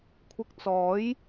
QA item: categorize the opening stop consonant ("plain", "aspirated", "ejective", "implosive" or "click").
aspirated